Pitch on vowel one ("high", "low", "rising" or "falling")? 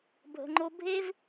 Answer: low